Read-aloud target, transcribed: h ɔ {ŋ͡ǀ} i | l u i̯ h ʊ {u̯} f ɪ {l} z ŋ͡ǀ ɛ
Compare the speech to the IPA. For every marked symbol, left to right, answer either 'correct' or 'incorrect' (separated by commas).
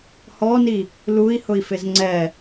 incorrect, incorrect, incorrect